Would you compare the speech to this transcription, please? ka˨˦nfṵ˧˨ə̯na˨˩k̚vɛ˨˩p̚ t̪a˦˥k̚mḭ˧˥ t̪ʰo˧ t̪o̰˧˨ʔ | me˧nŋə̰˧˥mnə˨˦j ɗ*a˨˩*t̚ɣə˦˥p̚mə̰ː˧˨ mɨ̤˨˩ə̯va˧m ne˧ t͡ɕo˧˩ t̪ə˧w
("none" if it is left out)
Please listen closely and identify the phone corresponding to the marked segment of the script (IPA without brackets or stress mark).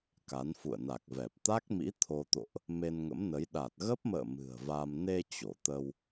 a˨˩